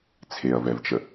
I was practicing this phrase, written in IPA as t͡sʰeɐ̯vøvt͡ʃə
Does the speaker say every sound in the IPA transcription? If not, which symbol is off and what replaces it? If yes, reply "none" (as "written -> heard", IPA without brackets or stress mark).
ø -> ɛ